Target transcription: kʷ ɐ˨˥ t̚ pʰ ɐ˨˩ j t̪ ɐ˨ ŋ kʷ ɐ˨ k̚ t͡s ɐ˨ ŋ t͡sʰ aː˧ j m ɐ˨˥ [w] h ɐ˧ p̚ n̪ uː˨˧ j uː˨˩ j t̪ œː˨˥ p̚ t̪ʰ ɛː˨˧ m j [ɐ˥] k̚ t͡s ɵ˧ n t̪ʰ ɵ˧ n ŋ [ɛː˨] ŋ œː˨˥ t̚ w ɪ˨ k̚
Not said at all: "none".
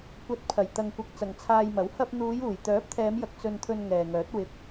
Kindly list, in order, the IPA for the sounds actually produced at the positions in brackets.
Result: w, ɐ˨, ɛː˨

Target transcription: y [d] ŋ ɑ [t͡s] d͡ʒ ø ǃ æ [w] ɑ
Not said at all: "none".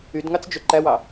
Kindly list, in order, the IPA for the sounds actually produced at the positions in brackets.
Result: d, t͡s, w

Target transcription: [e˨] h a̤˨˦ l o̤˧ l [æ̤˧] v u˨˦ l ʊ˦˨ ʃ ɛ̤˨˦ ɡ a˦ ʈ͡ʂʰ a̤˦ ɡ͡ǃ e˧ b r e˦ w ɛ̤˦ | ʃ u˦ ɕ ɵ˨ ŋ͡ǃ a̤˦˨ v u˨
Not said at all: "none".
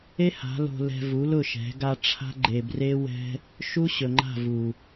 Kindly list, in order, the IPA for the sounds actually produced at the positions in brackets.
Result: e˦, ɛ̤˧

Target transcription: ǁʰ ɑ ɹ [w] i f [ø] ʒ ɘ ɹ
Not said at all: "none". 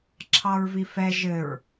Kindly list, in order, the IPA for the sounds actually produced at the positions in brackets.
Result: v, ɛ

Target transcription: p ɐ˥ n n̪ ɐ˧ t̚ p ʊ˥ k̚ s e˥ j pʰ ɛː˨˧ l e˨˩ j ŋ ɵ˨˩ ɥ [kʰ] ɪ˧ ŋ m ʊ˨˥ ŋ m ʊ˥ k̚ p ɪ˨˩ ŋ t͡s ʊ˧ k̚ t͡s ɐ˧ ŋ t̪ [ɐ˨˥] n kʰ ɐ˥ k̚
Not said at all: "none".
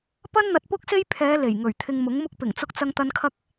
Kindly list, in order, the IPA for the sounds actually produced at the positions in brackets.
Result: t̪ʰ, ɐ˧

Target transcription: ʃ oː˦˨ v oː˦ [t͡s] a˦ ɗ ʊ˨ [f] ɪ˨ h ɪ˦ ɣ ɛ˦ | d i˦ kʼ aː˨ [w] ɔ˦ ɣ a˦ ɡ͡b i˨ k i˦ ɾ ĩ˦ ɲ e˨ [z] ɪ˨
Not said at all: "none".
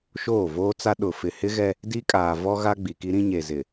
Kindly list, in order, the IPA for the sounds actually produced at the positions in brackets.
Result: t͡s, f, v, z

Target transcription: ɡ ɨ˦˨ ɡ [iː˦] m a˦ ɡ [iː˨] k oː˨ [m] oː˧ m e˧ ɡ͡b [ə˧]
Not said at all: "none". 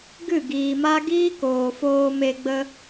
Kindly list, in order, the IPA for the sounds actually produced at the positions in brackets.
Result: iː˨, iː˦, f, ə˦

